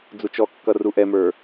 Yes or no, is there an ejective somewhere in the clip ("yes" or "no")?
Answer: no